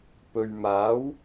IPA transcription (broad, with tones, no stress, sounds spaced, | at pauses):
p ɵ˨ ɥ m aː˨˥ w